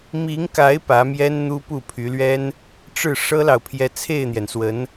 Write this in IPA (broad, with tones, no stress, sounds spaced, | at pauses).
m i˧˥ ŋ k a˧˥ ɪ̯ p ä˧˥ m j ɛ˥ n n̪ u˥ p u˥˩ pʰ y˧˥ l ɥ ɛ˥ n | ʈ͡ʂ ɻ̩˥˩ ʂ ɤ˥ l ɑ˨ ʊ̯ pʰ j ɛ˧˥ t͡sʰ e˥˩ ɪ̯ n̪ j ɛ˩ n s w ə˧˥ n